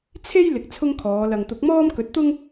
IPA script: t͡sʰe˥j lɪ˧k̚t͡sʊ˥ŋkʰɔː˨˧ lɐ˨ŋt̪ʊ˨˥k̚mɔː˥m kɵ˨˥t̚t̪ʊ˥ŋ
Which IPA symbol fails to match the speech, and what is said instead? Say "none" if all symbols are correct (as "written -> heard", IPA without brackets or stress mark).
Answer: t͡s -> t͡sʰ